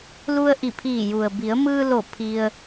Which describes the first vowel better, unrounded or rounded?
rounded